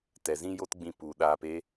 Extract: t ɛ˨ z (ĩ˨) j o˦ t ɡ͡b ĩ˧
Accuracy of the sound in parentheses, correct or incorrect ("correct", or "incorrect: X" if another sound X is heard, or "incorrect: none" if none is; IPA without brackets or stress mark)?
incorrect: ĩ˦